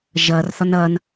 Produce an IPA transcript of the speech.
ʒ ʌ r θ ɒ n ʌ n

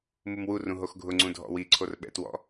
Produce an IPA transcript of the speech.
m u m w u r ũ ɦ o x ɡʱ ʊ ŋ͡ǀ ũ dʱ ɔ̰ w i ǀʰ o r ɓ ɛ̰ t w ɔ̰

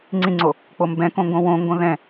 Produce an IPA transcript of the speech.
ŋ͡ǀ ĩ ŋ͡ǀ o | k͡p o m b ɛ̃ k õ ŋ ɡ õ w õ ŋ ɡ õ ð ɛ̃

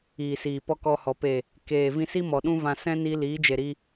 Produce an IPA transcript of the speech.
iː˨ s iː˨ p ɔ˦ k ɔ˧ h ɔ˨ p e˨ | k eː˨ v ĩ˧ s i˦ m ɔ˨ ɗ ũ˦ v ã˧ s ɛ̃˦ n i˧ l iː˨˦ d͡ʒ e˨ ɾ i˧

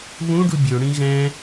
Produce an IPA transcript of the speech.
β ũ ɖ u bʲ ø ɽ ĩ ɣ ɛ̃

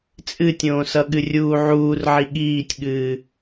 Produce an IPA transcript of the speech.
t͡sʼ ɨ tʲ õː s ʌ ɠ ɨ rʲ uː ʕ uː r ʕ i ɠ iː tʲ ɠ ɨː

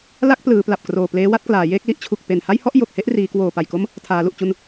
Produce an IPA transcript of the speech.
l a˥˩ k̚ p l ɯː˩˦ p l a˨˩ p̚ k r oː˨˩ p l eː˦˥ w a˦˥ t̚ k l aː˩˦ j eː˥˩ k̚ l i˦˥ ʔ t͡ɕʰ u˨˩ k̚ p e˨˩ n h a˥˩ j h ɔ˥˩ ʔ j o˨˩ k̚ h e˥˩ ʔ r iː˩˦ k w oː˨˩ p a˨˩ j k o˦˥ m | tʰ aː˩˦ l u˨˩ ʔ t͡ɕ u˧ n

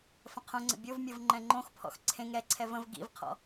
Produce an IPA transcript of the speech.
f ə̃ qʰ õ ŋ͡ǀ ə̰ bʲ o v mʲ ɤ v ŋ͡ǃ ɛ̃ ŋ͡ǃ õ x pʰ ɔ̰ x ǀʰ ẽ ŋ ɾ ɛ ǀʰ ɛ v ə̃ v ɡ ḭ v qʰ ɔ̰

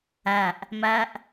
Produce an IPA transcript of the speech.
æ ʔ | m æ ʔ

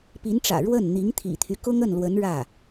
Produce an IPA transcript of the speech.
p i˧˥ n ʈ͡ʂ ä̰˨˩ ɻ w ə˥˩ n n̪ i˧˥ ŋ t̪ʰ ḭ˨˩ t̪ʰ y˦ k ʊ˥ ŋ ə˥˩ n l w ə˧˥ n ɻ ä˥˩

